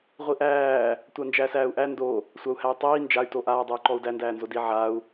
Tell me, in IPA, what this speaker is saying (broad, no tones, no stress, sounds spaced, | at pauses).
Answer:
ʁʷ i ʔ æː | tʷ a n d͡ʒ æː s æː u̯ ʔ æ n d o | sʷ a u̯ h æ y̯ tˤ iː n d͡ʒ a y̯ t o ʔ aː dˤ æ y̯ ǃ ɔ u̯ d æ n d æː n z o d i ʕ a u̯